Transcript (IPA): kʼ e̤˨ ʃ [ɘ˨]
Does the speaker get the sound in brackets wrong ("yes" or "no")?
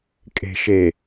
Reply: yes